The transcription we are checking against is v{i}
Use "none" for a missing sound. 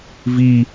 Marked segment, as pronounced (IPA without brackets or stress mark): i